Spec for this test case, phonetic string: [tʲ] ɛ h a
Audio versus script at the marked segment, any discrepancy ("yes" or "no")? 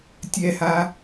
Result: no